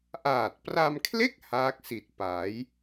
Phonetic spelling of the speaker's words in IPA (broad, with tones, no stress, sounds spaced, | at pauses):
ʔ aː˨˩ t̚ p r a˧ m kʰ l e˥˩ k̚ h aː˦˥ k̚ s i˨˩ t̚ p a˩˦ j